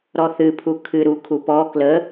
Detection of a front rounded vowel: absent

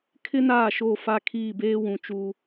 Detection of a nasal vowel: present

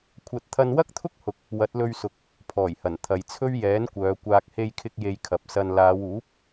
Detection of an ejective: absent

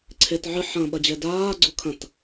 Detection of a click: present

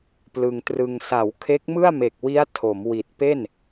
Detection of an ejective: absent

